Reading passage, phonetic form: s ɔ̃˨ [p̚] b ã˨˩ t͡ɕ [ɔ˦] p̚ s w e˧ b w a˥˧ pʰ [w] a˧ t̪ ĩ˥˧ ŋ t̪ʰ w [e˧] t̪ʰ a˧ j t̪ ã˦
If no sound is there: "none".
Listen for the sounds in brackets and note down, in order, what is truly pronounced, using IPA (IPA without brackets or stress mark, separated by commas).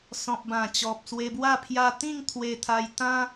p̚, ɔ˨, j, e˧